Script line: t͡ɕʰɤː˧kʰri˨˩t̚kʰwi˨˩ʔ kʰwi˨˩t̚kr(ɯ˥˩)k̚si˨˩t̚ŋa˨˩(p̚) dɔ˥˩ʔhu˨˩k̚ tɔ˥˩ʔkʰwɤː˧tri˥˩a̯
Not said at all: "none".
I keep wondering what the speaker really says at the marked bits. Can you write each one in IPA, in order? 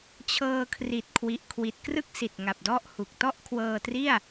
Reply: ɯ˥˩, p̚

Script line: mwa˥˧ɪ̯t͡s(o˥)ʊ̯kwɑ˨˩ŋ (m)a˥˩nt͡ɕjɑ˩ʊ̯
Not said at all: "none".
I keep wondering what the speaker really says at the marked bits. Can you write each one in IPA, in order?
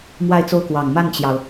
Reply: o˥˩, m

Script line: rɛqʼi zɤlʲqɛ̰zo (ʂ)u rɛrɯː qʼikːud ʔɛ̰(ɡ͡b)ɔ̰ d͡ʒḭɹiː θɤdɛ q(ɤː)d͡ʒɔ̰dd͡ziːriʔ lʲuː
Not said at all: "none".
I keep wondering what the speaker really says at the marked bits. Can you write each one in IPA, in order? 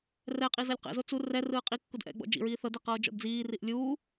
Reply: t͡s, ɡ͡b, ɤː

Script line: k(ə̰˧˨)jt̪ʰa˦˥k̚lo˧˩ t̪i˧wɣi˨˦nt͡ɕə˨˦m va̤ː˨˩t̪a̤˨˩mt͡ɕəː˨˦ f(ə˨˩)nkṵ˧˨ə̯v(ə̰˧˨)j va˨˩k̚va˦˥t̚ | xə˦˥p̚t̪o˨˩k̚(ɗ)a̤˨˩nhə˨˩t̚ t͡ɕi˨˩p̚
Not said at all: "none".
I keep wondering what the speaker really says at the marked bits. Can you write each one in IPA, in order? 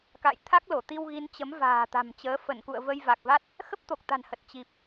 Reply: a̰˧˨, ə˧˩, ə˧, t̪

